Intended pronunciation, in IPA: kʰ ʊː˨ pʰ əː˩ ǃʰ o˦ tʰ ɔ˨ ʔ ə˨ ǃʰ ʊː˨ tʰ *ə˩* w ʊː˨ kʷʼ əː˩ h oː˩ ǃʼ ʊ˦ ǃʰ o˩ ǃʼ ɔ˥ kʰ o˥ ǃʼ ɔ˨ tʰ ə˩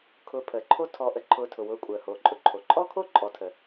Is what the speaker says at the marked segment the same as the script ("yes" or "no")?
no